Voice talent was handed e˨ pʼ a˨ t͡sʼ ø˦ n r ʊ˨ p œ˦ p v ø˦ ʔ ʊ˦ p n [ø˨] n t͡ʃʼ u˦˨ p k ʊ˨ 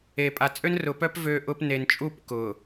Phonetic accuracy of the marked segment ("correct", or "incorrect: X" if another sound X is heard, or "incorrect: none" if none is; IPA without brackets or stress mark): incorrect: e˨